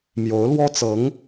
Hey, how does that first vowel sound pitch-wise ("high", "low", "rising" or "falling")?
rising